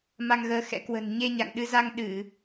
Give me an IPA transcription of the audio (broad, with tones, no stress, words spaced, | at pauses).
ma˧ŋɣəː˨˦xɛ̰˧˥ kwə̤˨˩n ɲe˧ ɲa̰˧˨ŋ ɗɨ˧za˧ŋ ɗɨ˧˩˨